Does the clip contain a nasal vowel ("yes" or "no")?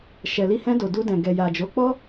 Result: yes